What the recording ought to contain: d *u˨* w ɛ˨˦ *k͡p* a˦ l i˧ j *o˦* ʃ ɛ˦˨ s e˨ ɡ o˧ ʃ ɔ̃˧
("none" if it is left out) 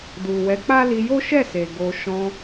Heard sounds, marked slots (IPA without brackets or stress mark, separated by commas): u˨, k͡p, o˦